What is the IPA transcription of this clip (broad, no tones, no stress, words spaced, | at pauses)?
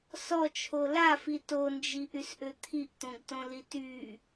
sɔt͡ʃʰo lafi tond͡ʒiʔysʔø t̪ʰiʔt̪õɡtõli ty